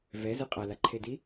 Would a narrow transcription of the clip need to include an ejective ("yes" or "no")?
yes